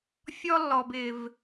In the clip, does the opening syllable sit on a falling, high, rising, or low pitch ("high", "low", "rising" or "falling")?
high